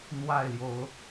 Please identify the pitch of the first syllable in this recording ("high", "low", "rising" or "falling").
falling